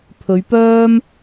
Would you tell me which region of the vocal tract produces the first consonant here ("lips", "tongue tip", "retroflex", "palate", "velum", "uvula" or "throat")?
lips